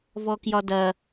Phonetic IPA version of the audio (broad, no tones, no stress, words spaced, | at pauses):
vɔkjɒdɐ